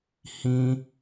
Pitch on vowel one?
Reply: high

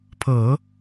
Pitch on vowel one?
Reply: low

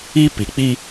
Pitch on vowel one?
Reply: high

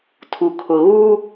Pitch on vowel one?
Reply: low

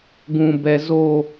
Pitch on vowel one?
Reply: low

